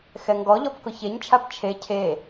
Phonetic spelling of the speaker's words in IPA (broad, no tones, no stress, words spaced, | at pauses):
xɛŋɡɔʎɔp kʊçeɲt͡ʃʰap t͡ʃʰe cʰe